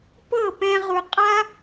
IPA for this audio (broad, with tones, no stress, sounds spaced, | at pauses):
p ɤ˦˨ p ɛ̃˧ ʁ u˨ qʼ a˦